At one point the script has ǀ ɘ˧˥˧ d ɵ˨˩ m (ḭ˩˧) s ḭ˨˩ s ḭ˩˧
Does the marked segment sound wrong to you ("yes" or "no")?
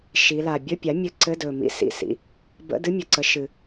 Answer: yes